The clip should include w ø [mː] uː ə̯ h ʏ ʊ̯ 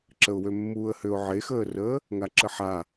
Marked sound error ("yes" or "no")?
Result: no